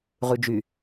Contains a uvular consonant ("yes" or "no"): yes